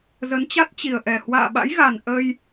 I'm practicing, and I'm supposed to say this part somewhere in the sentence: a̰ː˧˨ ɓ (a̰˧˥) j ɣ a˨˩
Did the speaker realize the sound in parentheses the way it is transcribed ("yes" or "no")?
yes